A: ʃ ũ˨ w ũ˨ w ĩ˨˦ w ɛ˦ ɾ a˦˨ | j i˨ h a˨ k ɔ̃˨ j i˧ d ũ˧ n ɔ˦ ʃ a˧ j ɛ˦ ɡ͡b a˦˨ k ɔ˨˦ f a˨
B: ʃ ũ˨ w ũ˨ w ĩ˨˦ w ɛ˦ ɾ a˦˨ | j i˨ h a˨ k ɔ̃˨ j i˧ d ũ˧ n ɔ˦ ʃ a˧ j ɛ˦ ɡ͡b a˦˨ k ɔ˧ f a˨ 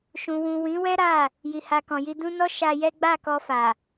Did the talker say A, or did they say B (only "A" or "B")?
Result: B